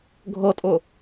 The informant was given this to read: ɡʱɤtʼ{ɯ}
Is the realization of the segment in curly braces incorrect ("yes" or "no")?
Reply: yes